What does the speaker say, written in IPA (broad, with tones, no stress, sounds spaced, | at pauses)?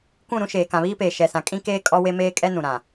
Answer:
kʷ ũ˦˨ ɾ ũ˦ ʃ eː˨ k ã˨ β iː˦ p eː˨ ʃ ɛ˨ s ã˨ kʼ ĩ˦ k eː˦ kʼ ɔ˦ w e˦ m eː˦ kʼ ɛ˦ n ũ˨ ɾ ã˨